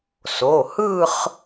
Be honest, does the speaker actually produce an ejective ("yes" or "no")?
no